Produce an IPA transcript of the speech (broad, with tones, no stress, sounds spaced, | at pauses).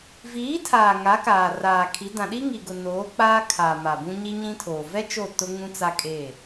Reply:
v iː˨˦ tʰ aː˨ ŋ a˨˦ k aː˨ r aː˨ kʰ i˨˦ d ã˨ ɗ i˦ ŋ i˨ ɡ ʊ˨ n oː˨˦ k͡p aː˦ kʰ aː˨ m a˨ b ũ˦ ɲ i˦ ɲ ĩ˦ tʰ oː˨ v ɛ˦ t͡ʃ o˦˨ t ʊ˦ ŋ ũ˦ t͡s a˦ kʼ e˦˨